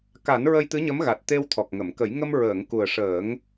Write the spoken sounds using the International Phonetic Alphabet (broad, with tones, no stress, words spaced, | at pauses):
ka˨˩˦n ɹə˧jt̪ɨ˧˥ɲə˧˥mɣa˨˩t̚ t̪e˧wt̪ʰɔ˨˩k̚ŋə˨˩˨mkə˨˩˦j ŋə˧m ɹəː˨˩˨ŋ ku˨˩ə̯ʂəː˨˩˦ŋ